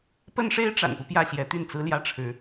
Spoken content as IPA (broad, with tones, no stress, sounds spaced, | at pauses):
p ə˥ n ʂ e˥ ɪ̯ ʈ͡ʂ a̰˨˩ n p u˦ p j ä˥˩ ɕ j ɛ˧˥ t̪ y˥˩ n t͡s ɹ̩˥ l j ä˥ ʈ͡ʂʰ ɻ̩˧˥